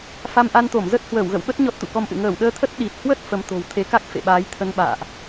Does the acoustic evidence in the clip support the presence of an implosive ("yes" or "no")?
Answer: yes